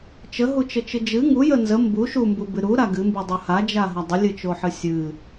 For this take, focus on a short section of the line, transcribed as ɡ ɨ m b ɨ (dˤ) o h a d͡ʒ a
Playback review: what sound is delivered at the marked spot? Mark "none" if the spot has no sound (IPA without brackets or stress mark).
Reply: dˤ